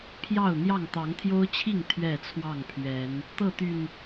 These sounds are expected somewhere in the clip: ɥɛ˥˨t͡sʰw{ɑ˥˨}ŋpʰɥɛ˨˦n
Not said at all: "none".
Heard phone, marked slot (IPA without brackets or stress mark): ɑ˥˨